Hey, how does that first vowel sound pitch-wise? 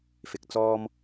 low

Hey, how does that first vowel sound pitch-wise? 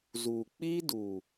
low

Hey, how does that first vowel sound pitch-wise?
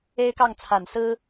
high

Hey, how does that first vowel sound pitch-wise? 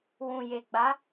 low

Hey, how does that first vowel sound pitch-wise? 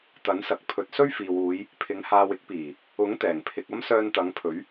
rising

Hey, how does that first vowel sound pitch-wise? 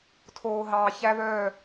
low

